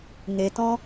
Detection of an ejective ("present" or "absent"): absent